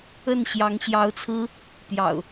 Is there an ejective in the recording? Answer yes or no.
no